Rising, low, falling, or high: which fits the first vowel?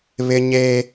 high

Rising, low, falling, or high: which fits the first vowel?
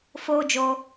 high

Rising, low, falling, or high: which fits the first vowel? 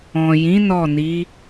low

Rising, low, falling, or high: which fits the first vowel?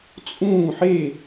falling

